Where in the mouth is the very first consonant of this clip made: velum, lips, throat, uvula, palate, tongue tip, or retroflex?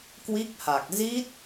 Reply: velum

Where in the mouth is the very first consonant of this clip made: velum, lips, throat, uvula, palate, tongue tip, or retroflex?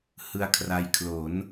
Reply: throat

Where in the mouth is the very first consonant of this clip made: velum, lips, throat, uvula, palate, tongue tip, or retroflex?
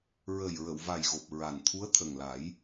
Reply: tongue tip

